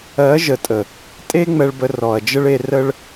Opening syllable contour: rising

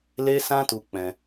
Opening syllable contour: high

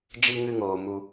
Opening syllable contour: high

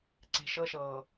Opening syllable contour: low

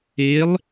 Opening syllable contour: rising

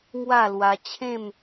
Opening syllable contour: falling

